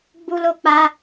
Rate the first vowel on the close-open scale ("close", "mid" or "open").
close